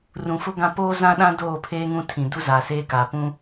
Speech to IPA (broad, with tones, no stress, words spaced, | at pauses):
rũ˨fʊ˦ɡã˦ poː˦zã˦ɗã˦ doː˦˨pʰeː˦ŋũ˦tʰĩ˨ du˦zaː˨seː˦kaː˨ pũ˦